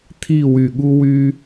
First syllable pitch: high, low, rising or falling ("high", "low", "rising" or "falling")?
falling